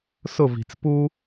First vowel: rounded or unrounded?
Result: rounded